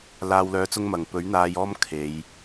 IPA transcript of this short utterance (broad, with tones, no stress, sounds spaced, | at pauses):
l aː˧ w l œː˧ t͡s ʊ˥ ŋ m ɐ˨ ŋ p ɵ˨˥ ɥ n̪ aː˧ j ɔː˥ m kʰ e˨˧ j